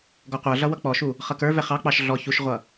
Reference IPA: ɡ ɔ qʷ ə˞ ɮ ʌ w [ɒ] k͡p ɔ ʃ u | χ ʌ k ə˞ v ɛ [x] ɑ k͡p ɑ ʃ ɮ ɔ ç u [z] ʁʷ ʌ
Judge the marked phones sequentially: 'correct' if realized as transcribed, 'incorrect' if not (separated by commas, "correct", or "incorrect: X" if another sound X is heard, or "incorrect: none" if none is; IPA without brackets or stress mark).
incorrect: ʌ, incorrect: χ, incorrect: ʃ